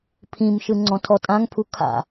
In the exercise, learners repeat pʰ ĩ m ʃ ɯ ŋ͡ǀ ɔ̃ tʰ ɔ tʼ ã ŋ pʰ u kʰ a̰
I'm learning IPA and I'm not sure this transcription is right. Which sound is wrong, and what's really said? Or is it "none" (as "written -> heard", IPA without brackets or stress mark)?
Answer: none